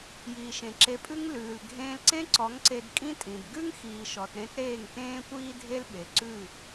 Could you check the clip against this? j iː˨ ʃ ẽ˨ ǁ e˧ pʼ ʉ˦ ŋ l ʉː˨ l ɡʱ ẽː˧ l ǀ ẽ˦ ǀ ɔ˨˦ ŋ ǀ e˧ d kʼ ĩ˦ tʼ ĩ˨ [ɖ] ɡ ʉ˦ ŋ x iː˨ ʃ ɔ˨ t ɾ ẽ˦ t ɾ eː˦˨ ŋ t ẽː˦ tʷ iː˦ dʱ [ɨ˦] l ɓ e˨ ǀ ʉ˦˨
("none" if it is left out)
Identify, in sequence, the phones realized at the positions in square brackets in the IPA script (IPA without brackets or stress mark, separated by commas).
d, e˦